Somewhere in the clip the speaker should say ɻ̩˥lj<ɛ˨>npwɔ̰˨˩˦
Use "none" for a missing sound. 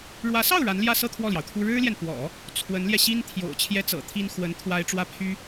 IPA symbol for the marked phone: ɛ˨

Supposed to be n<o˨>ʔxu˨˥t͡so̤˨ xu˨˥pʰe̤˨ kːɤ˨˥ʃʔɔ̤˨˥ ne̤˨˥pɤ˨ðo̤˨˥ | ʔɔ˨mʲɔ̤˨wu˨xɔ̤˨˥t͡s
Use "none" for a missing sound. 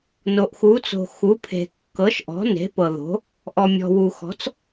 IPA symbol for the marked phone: o˨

